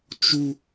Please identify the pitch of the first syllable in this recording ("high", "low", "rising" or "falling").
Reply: high